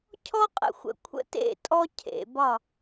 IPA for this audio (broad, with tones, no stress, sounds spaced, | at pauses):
cʰ ɔ˦ qʼ ə̰˨ xʷ ə̰˨ kʷʰ ə̰˦ t ḛ˦˨ tʼ ɔ˦ cʰ ḛ˨ b ɒ˦˨